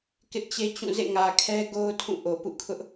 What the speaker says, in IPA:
k ɪ˦ ʔ t͡ɕ e˦ t͡ɕ ũ˦˨ z ḛ˦˨ ŋ ä˨ kʰ ɛ˦ ɡ o˦ ʊ̯ tʰ ũ˦˨ ʔ o˨ p ṵ˦˨ kʰ ʊ˦ ʔ

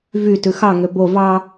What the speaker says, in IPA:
v y t ʉ x ɑ ŋ ø b o v ɑ

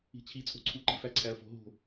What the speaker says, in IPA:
i̤ t͡ɕʰ i t͡sʼ o̤ ǀʰ u ǃ i̤ f æ ǀʰ æ ɐ̯ f o̤ ɦ o̤

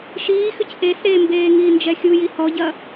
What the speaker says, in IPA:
ʃ iː x ʏ c ʔ e s ɾ e m b eː ŋ iː n d͡ʒ ɛ xʲ u j i h ɔ ɟ ɐ

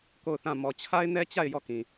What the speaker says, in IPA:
k o˦˨ ʊ̯ θ ã˦˨ m ɔ˨ t͡ɕʰ a˦ ɪ̯ n ɛ˦ t͡ɕ a˦˨ ɪ̯ j ɔ˦˨ k ĩ˨

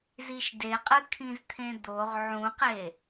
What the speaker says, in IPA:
z i ʃ d e qʼ ɨ kʰ ĩ z t̪ʰ ẽ d̪ o ʁ ʕ ũ q e

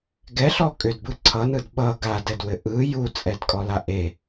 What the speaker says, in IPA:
ɡ ɛ ɬ ɔ kʼ ʏ d b ɯ ǀʰ ʌ n ɯ d ɓ ʌ ɡ a d ɛ d w ɘ ʔ ɯ j u t͡sʼ ɛ d kʼ ɔ l a ʔ e

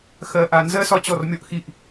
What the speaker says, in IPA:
x ɜ˨ ʔ a˨ n z ɜ˦˨ s ɒ˦ t͡ɕ ɔ˨ r mʲ ɔ˧ ʔ x i˧ ʔ

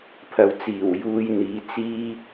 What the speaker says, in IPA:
pʰ ɐ˨ w t͡s iː˨˩ w j uː˧ j n̪ iː˨˧ t͡s iː˥

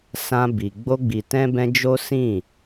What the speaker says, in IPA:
s ã˧ b i˨ ɡ͡b o˧ ɡ͡b i˨ t ɛ̃˧ b ɛ̃˧ d͡ʒ o˦ s ĩ˦˨

